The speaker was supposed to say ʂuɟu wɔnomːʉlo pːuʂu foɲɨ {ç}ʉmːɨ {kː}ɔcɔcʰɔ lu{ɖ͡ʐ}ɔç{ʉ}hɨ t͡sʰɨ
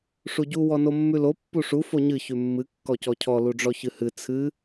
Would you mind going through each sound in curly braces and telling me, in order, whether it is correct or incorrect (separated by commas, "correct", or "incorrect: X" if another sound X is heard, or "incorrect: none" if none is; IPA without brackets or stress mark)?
correct, correct, correct, incorrect: ɨ